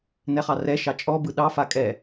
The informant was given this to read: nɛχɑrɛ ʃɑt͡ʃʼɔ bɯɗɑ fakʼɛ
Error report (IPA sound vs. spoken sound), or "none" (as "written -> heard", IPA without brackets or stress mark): none